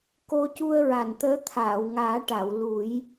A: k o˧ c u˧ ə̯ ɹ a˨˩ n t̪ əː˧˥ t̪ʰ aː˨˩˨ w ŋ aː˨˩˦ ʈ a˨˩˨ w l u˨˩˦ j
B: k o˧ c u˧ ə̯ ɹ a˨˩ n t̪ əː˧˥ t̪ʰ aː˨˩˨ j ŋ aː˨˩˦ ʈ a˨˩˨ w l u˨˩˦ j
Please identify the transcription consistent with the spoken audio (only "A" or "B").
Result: A